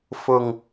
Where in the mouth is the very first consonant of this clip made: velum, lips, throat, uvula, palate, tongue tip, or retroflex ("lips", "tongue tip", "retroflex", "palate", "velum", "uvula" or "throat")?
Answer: lips